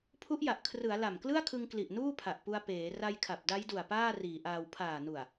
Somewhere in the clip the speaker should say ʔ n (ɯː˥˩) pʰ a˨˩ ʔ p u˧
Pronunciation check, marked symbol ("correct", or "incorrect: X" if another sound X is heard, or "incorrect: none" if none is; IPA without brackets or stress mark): incorrect: uː˥˩